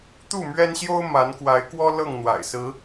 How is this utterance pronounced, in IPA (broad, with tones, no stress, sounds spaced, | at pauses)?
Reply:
t̪ u˥˨ m ɥ ɛ˦ n ɕ j o˦ ʊ̯ m a˨˦ n k w a˨˦ ɪ̯ k w ɔ˦ l ɤ˥˨ ŋ n̪ w a̰˨˩ ɪ̯ s ɹ̩˨˦